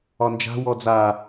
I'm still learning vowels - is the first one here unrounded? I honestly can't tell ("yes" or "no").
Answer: no